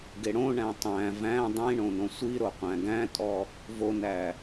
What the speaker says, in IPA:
ɡeɽõɳæ̃ tˤæ̃ væ̃ dˤĩɳõ nõsʷiɾo qʷæ̃ɡæ̃tʼɔ | vonæ

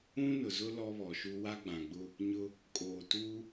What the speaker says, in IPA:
ũ˦nʊ˨zʊ˦ lɔ˦βɔ˨ʃu˦ wa˦ɡ͡bã˨ɡ͡bʊ˦ | ɲʊ˦ | kʼoː˨tuː˦

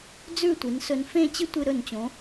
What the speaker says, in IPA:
d͡zʉ˥˧tʷi˩˧n sɵ˧n fẽ˥˧t͡ɕɨ˥ tʷɨ˧ɾɵ˧˩nt͡ɕõ˩˧

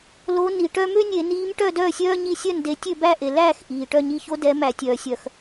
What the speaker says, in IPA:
lo˨˦ ni˩ ʈœ˦ mø˦nʲe˧˩˧niː˨˦m ʈœ˥˨dœː˥˨sʲœː˦ ɲi˦ sʲœ˥˨nde˨˦ tʲø˥˨bæ˥˨ʔe˩ læː˥˨x ʔiː˩ ʈœ˥˨ɲi˥˨ ço˦dɛ˨˦ mæ˧˩˧tʲœː˩sʲœ˧˩˧x

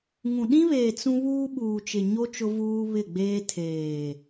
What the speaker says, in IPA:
ŋũ˨ɗĩ˦βeː˨ t͡sũ˦ βuː˦ɓuː˨t͡ʃɪ˨ɲo˦ t͡ʃʊ˦vuː˦βɪ˦˨ɡ͡beː˦ tʰeː˨

